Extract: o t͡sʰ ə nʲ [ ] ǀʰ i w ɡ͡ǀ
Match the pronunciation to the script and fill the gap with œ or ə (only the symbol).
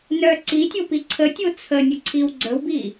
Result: ə